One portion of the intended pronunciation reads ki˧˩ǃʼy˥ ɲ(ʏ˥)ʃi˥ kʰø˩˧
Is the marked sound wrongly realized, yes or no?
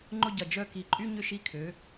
no